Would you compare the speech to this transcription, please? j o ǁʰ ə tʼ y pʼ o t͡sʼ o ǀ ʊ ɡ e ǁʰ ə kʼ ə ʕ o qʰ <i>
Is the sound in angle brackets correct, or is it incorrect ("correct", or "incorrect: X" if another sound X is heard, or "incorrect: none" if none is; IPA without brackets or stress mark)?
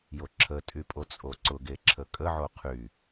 incorrect: y